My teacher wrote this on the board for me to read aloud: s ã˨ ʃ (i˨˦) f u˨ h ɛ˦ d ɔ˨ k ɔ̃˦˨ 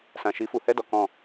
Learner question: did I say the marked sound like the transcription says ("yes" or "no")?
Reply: yes